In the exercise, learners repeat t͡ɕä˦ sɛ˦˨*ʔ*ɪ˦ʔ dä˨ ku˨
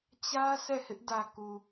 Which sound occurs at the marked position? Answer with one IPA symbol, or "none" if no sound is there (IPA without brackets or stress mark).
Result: h